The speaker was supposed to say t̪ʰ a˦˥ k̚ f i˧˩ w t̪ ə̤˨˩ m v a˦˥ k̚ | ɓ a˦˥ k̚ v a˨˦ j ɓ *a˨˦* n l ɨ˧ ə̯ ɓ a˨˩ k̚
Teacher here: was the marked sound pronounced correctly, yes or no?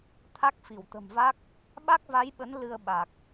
no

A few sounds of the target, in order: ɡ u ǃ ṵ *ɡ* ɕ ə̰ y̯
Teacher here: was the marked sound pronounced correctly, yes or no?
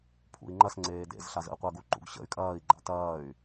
yes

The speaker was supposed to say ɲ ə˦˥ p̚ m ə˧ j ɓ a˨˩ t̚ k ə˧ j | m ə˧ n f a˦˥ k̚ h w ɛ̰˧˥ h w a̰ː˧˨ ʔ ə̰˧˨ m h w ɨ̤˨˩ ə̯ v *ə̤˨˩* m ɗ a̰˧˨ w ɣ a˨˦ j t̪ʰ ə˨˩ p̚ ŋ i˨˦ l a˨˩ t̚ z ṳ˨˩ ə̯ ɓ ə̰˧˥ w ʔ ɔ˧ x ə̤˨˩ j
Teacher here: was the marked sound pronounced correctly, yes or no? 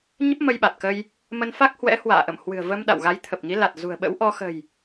no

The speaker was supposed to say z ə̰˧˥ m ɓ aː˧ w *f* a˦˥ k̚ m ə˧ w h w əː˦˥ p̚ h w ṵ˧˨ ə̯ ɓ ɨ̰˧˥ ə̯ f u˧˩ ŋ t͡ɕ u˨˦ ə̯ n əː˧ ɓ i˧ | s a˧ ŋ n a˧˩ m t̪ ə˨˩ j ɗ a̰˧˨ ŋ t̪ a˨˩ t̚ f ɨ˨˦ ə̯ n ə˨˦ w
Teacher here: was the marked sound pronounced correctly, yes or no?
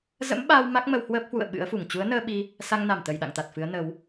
no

